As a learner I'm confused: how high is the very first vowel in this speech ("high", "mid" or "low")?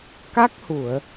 low